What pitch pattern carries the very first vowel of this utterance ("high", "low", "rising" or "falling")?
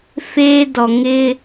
high